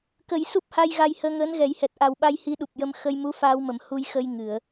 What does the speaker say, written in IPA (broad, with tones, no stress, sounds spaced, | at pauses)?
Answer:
k ə˨˩˦ j s u˦˥ p̚ h a˧ j ɣ a˧ j h əː˧ ŋ əː˧˥ n ɣ ɛ˨˩˦ j h ɛ˨˩ t̚ ʔ a˨˩ w ɓ a˧ j h i˧˥ ɗ u˨˩ p̚ j ə˧ m x ə˧ j m u˧˥ f aː˧ w m ə˨˩˨ m h u˧ j x ə˧ j ŋ ɨ˨˩˨ ə̯